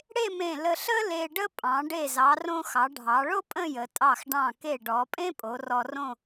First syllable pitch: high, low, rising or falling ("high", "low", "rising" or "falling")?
falling